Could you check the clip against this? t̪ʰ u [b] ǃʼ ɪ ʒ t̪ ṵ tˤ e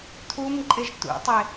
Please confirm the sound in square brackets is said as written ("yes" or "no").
no